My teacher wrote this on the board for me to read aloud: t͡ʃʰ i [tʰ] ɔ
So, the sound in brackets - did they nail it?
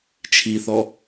no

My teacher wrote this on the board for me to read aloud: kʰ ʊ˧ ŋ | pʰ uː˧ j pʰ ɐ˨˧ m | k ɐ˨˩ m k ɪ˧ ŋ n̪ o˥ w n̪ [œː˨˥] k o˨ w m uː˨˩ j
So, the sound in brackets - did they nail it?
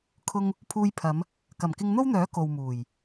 yes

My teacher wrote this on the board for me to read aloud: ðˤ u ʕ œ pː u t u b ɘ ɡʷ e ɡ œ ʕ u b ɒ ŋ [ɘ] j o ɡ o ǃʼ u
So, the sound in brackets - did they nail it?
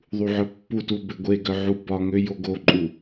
no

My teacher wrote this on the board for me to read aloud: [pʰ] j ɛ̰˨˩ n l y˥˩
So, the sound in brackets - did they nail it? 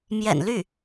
no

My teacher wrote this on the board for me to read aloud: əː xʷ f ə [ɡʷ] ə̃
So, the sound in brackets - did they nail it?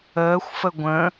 yes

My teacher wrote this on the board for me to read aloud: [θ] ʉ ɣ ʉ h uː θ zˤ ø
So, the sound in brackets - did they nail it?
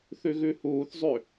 yes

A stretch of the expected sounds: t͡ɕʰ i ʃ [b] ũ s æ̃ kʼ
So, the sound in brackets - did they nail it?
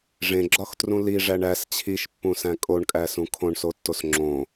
no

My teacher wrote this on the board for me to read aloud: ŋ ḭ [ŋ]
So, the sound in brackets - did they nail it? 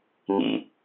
no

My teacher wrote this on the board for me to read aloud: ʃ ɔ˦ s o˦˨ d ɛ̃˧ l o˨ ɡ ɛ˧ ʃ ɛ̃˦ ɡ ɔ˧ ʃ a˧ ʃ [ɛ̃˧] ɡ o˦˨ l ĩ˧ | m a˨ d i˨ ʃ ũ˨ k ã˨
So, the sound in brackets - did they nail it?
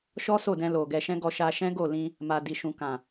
no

